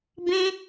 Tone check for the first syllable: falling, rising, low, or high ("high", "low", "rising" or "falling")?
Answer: high